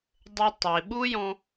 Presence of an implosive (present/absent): present